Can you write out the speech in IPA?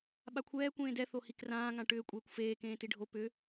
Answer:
ɓ a kʷʰ ɛː kʷ ẽː d ɛ θ o h i k r ãː ŋ ã ʈ ʏː kʷʼ eː kʷ f eː k ẽː t i ɖʱ o p ʏ

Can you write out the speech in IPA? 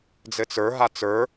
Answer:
d͡z ɘ t͡s ə˞ ɦ a t͡s ə˞

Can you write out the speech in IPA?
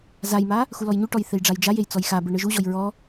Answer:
z a j m a | x u l ɔ j ɲ u ʈ ɔ j θ e j ɖ͡ʐ a j d͡ʒ a j e j t͡s ɔ j x a b ɯ ɳ ɯ ʒ u ʑ ɔ j ɹ ɔ

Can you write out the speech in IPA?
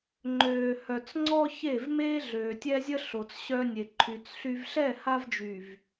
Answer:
ŋ͡ǃ øː˨ h œ˨ t͡s ŋ͡ǀ ɔ˦ ç e˦˨ v m eː˦ ɮ øː˨ tʲ ɛ˦ zʲ ə˦ ɬ o˨ t͡s ɕ œ˦ nʲ e˨ ǃʰ y˨ t͡s ɬ y˨ v ɬ ɛ˦˨ h a˦ v d͡ʒ y˨ v

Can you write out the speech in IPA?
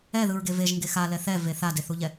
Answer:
ɛ ð ɯ ɹ ɡ e v e ʒ ŋ ɡ e x a l ɛ θ ɛ v e θ a d e θ u ʎ ɛ

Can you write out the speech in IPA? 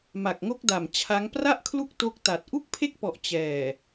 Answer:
m a˨˩ k̚ ŋ o˦˥ k̚ d a˨˩ m t͡ɕʰ a˦˥ ŋ p r a˥˩ ʔ kʰ l u˦˥ k̚ t o˦˥ k̚ t a˨˩ t̚ ʔ u˥˩ k̚ pʰ e˥˩ k̚ p ɔ˨˩ ʔ t͡ɕ ɛː˨˩

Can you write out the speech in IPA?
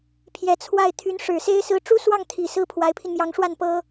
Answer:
pʰ j ɛ˧˥ t͡sʰ w a˥˩ ɪ̯ t̪ʰ y˧˥ n ʂ ɻ̩˨˩ s e˥ ɪ̯ s ɹ̩˧˥ ʈ͡ʂ u˥ s w ɑ˥˩ ŋ t̪ʰ i˨˩ s ɹ̩˥˩ pʰ w a˧˥ ɪ̯ pʰ i˧ n m j ɑ˧˥ ŋ ʂ w a˥˩ n p ɤ˥

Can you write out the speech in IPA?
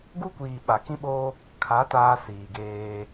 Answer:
ɡ u˦ kʷ iː˨ ɓ a˨ k ĩ˦ ɓ o˦ | kʰ a˨˦ t aː˦ s iː˨ ɡ eː˦

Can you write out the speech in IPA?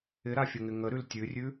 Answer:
ɪ ɾ a fʲ ə ŋ ɪ ŋ ə ɾ ʉ l tʲ ʉ rʲ ʉ

